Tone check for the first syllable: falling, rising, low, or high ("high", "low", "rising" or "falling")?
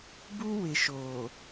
high